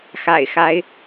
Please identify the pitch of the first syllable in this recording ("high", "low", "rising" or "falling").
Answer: low